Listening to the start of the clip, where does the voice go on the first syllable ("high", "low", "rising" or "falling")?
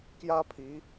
high